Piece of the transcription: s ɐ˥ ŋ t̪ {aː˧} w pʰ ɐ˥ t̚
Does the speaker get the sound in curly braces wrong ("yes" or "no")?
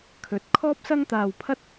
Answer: no